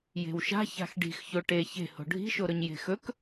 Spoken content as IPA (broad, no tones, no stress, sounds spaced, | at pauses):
j e̤ w ʃ a̤ ç a̤ x ɖ i̤ x ç o ʈ e ç e̤ h o̤ ɖʱ i̤ ʃ o ɾ ɵ ɲ j e̤ x ɵ k